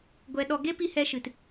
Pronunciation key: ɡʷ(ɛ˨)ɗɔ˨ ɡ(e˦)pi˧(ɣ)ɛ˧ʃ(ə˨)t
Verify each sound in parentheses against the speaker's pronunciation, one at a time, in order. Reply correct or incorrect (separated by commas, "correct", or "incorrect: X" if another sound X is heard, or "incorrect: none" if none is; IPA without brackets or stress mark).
correct, correct, incorrect: h, incorrect: ɨ˨